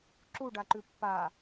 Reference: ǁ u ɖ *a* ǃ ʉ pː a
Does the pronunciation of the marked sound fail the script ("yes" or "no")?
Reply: no